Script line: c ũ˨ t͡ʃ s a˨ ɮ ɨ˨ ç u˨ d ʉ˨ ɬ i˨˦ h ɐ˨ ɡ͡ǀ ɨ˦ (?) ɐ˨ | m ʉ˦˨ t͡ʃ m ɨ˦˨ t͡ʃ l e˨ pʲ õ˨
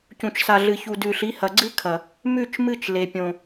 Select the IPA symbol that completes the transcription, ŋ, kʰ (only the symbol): kʰ